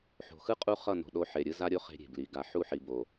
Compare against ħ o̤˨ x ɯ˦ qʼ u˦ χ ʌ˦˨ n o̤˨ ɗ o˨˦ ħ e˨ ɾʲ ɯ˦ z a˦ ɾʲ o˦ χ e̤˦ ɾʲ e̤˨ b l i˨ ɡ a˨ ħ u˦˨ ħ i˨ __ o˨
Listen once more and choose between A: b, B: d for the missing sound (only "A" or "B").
A